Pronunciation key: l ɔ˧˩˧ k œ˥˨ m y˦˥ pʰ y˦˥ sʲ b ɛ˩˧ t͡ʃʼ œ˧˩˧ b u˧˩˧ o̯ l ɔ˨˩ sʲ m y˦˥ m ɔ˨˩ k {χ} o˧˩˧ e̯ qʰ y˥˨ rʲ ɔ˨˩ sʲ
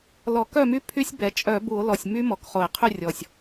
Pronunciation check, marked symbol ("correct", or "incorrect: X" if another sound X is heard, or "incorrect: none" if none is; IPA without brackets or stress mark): correct